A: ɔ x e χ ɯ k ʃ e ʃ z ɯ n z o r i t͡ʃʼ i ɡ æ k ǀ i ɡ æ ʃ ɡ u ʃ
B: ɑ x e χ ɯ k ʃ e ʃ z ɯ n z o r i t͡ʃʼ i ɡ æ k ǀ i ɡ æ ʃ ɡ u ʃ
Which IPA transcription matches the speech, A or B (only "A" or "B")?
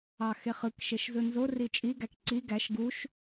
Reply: B